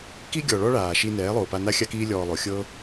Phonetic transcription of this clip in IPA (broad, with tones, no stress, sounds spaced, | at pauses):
k i˧ ɡʲ ɔ˨ ɭ ɔ˧ ɭ aː˨ ʃ i˧ n ɛː˨˦ lˠ oː˨ p a˧ n a˦ xʲ a˦ k iː˦ lʲ ɔː˧ lˠ o˨˦ xʲ ɤː˦